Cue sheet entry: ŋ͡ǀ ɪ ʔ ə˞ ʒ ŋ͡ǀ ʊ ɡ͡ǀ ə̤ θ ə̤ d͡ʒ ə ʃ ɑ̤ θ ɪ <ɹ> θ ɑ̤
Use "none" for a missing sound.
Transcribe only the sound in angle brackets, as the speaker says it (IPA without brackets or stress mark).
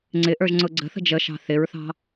ɹ